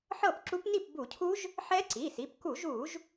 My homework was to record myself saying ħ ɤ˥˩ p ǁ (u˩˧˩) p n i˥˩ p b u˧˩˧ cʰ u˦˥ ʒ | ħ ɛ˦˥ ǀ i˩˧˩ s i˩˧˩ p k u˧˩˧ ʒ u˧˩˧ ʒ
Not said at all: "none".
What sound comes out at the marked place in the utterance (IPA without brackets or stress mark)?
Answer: u˦˥